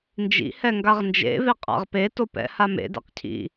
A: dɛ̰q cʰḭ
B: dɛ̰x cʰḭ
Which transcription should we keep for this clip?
A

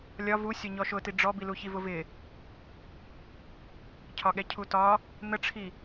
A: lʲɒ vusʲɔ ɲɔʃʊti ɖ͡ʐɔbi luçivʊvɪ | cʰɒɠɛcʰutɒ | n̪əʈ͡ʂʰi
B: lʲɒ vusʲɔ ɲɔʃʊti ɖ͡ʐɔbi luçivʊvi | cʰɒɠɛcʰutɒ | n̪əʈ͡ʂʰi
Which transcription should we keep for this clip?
A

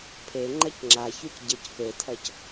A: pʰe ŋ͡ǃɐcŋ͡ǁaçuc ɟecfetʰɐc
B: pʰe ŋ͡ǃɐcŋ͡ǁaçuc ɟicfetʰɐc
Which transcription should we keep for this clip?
A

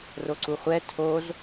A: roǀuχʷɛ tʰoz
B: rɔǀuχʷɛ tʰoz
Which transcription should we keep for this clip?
A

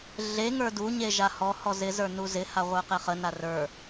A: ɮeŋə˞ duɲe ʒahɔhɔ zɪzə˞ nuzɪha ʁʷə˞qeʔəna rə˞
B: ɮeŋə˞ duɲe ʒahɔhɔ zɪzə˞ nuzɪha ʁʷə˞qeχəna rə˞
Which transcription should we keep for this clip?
B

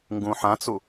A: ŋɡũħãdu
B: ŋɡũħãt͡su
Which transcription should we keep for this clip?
B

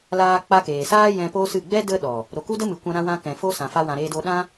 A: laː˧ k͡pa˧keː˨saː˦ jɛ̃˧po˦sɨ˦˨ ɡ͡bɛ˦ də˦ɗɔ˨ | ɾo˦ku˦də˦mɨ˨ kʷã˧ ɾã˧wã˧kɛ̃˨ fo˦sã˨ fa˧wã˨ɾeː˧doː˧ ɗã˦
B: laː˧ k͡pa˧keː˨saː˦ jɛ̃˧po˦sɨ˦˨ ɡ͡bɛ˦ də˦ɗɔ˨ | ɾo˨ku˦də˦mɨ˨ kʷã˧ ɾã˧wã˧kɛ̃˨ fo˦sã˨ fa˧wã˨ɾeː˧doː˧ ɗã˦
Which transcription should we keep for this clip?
B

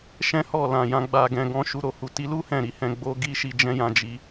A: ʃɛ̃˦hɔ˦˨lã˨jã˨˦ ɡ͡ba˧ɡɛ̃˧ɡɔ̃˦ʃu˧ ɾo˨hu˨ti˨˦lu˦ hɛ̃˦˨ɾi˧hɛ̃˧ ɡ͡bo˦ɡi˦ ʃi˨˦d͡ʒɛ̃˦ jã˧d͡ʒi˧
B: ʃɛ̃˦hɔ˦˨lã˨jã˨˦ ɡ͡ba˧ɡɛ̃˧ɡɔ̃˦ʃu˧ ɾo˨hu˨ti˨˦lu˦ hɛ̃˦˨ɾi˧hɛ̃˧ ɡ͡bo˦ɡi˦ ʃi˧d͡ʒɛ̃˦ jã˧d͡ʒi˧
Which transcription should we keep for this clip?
B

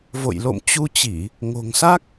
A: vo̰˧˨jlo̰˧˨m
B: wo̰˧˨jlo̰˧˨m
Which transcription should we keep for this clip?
A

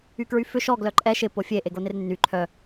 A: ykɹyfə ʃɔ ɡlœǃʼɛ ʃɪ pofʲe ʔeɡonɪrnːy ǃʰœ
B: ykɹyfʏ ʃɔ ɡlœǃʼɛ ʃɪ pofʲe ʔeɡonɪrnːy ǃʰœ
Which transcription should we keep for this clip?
B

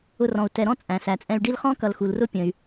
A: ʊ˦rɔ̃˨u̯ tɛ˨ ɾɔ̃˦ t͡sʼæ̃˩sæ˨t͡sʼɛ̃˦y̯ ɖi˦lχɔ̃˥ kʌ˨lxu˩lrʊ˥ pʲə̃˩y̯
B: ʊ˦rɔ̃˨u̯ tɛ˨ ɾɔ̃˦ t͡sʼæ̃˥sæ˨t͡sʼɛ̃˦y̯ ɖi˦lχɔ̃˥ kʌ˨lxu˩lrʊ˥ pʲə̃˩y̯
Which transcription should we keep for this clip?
A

